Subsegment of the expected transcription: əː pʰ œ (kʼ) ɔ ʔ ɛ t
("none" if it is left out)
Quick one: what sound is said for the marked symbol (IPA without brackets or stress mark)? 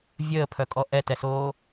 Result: kʼ